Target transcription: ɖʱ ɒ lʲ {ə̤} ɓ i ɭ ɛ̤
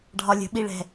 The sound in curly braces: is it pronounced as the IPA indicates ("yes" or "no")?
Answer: yes